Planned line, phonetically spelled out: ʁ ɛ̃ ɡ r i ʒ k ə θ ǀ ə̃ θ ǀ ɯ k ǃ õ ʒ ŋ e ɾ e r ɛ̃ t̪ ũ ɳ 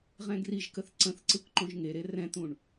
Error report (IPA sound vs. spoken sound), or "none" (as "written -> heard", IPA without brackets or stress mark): none